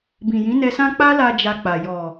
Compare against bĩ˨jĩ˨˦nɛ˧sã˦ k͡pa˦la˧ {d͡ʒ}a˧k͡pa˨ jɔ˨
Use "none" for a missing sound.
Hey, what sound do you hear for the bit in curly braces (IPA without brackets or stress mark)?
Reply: d͡ʒ